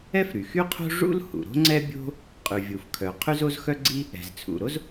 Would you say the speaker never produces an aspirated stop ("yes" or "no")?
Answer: no